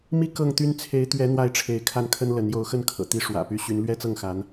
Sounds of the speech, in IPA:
m i˥ k ɤ˥˩ ŋ t̪ y˥ n t͡sʰ e˧˥ ɪ̯ t̪ ɥ ɛ˧˥ n̪ w a˥˩ ɪ̯ ʈ͡ʂʰ e˧˥ ɪ̯ kʰ a˥˩ n kʰ ə˥ n l ə˧˥ n j o˧˥ ʊ̯ x ə˥˩ n kʰ ɤ̰˨˩ t̪ i˥ ʂ w ä̰˨˩ p y˧˥ ɕ y˧˥ n l ɥ ɛ˥ t͡s ɤ˥˩ ŋ x a˧˥ n

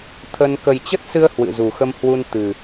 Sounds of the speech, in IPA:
t̪ʰ ə˧ n k ə˨˩ j t͡ɕ ə˦˥ t̚ s ɨ˧ ə̯ h w ɨ̰˧˨ z u˨˩ x ə˧ m h w u˧ n t̪ ɨ˨˩

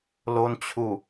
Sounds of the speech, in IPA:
l o˧ n t͡ɕʰ u˨˩

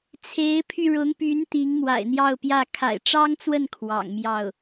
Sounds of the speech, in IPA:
t͡sʰ e˧˥ ɪ̯ pʰ y˧ ɻ ʊ˧˥ ŋ p y˧˥ n t̪ i˧˥ ŋ m w a̰˨˩ ɪ̯ n̪ j ɑ˥˧ ʊ̯ p j ä˥˩ kʰ a̰˨˩ ɪ̯ ʈ͡ʂ ɑ˥ ŋ t͡s w ə˥˩ n kʰ w ɑ̰˨˩ ŋ m j ɑ˥˩ ʊ̯

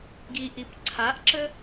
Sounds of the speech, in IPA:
ɡ i ʔ i p ǀʰ a ʔ ǁ ə

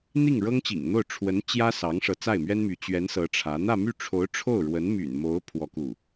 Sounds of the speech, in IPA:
n̪ i˥˩ ŋ ɻ ɤ˥ ŋ t͡ɕ ḭ˨˩ ŋ n̪ o˥˩ ʊ̯ ʈ͡ʂʰ w ə˧˥ n t͡ɕ j ä˥ s ɑ˧˥ ŋ ʂ ɤ˧˥ t͡s a˥˩ ɪ̯ m ɥ ɛ˥ n m y˧˥ t͡ɕ ɥ ɛ˧˥ n s ɤ˧˥ ʈ͡ʂʰ ä˧˥ n̪ ä˥˧ m y˥˩ ʈ͡ʂʰ o˧˥ ʊ̯ ʈ͡ʂʰ o˥˩ ʊ̯ ɻ w ə˧˥ n m y̰˨˩ n m o˧˥ ʊ̯ pʰ w ɔ˥ k u˥˩

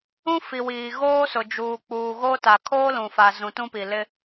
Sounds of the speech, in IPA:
ũ˦ f i˨ w iː˨ ɣ oː˦ s ʊ˨ d͡ʒ uː˨ k͡p uː˨ ɣ o˦ t a˨ kʰ oː˦ l ũ˨ f a˨ z ũ˨ t ũ˦ p i˨ l ɪ˦

